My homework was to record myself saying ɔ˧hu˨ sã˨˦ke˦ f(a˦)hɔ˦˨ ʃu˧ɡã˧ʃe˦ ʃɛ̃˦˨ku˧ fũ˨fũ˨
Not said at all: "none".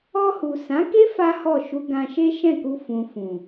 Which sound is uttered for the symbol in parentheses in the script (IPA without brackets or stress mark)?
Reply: a˦